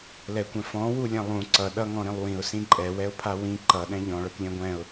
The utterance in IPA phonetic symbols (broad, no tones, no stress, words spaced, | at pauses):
lɛkʷɛ̃fɔ̃ wulʲɛ̃lˠũ ǀʌ ɗʌ ŋɔ̃ɾĩlˠwĩʊ̯ sĩǃʼɛ wɛʊ̯pʰawĩ ǃʌ ɗɛ̃ʎɔ̃ ɭʌkʷlʲɛ̃ɡʷɛ̃ʊ̯